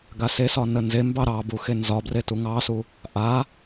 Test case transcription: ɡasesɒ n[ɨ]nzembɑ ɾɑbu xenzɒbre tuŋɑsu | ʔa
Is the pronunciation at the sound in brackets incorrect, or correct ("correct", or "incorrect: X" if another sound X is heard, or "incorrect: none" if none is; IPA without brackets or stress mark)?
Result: incorrect: ə